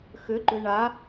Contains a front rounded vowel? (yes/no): yes